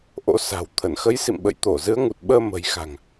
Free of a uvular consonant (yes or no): yes